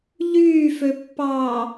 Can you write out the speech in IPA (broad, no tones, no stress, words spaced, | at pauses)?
ʎyːføpːɑː